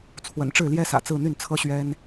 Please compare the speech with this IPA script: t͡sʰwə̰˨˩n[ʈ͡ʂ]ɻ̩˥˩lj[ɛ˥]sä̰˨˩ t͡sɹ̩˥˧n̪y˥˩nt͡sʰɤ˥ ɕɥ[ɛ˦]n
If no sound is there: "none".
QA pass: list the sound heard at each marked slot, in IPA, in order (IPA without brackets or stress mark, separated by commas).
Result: ʈ͡ʂ, ɛ˥, ɛ˥